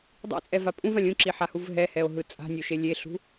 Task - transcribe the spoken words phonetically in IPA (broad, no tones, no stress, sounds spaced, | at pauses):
dˤ ḭ t͡sʼ ɛ v a pʼ ũ v ã lʲ ũ ǁ i ħ a h u v ɦ ɛ h ɛ o̯ ɦ ɯ t͡sʼ a̤ nʲ o ʃ e lʲ e ɬ ṳ